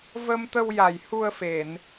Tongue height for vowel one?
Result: mid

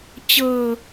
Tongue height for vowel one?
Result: mid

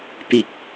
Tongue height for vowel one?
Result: high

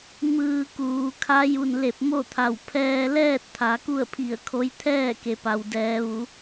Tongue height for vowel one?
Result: high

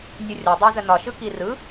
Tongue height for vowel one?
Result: high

